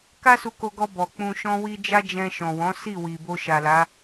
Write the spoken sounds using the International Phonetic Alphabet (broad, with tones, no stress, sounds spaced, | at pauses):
k a˦ s u˧ k o˧ ɡ ɔ˧ b ɔ˨ k͡p ũ˧ ʃ ɔ̃˦ w i˦ d͡ʒ a˦ d͡ʒ ɛ̃˧ ʃ ɔ̃˨ w ɔ̃˨˦ s i˦˨ w i˨ b o˧ ʃ a˨ l a˨˦